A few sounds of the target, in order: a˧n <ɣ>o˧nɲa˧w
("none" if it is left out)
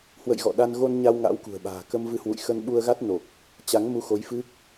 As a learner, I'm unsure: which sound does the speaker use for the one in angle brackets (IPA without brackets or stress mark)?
ɣ